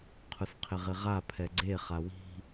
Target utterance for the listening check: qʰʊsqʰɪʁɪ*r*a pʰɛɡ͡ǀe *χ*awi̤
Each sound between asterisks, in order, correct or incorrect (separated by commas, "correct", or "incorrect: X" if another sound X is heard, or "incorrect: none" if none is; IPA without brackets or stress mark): incorrect: ʁ, correct